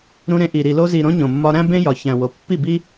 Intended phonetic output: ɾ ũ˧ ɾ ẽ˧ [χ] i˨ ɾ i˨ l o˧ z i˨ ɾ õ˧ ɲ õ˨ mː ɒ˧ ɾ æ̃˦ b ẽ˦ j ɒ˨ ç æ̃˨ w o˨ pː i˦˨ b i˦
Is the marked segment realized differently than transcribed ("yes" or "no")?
yes